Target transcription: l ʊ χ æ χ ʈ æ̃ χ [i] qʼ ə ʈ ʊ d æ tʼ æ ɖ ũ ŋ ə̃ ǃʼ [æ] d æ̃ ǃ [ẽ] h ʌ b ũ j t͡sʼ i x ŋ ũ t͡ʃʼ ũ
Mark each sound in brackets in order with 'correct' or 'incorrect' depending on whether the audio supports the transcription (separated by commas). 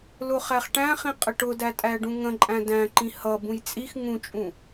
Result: incorrect, incorrect, incorrect